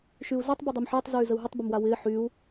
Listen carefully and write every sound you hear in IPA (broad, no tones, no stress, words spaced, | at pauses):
ʃyu̯zatˤ bydˤymħɪːtˤ zyːzəu̯ɦətˤ bəmwawɪː ħyu̯